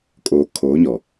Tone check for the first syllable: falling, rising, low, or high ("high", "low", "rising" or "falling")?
low